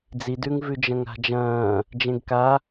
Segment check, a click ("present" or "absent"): absent